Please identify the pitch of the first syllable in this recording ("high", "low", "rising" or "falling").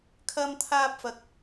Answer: high